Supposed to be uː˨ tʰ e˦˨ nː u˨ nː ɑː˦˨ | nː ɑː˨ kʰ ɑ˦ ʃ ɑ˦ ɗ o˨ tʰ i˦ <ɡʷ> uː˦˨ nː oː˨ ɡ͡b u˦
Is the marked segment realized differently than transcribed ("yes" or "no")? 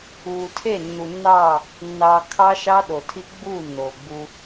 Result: yes